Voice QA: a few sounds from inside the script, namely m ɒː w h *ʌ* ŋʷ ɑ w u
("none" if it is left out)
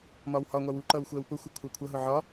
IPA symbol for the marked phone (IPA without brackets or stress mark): ɒ